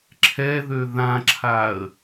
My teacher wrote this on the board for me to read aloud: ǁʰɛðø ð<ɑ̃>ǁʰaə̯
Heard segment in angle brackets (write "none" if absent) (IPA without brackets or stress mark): ã